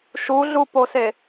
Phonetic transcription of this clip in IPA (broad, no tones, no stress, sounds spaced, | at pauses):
ʃ u ɮ u p o s e